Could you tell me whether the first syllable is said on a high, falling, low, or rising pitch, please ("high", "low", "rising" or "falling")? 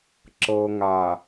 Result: low